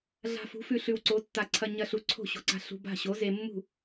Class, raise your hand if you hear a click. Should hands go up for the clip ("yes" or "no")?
yes